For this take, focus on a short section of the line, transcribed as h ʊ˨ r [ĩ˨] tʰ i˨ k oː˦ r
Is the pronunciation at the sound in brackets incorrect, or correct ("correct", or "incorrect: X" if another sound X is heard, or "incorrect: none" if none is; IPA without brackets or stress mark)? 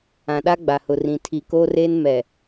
correct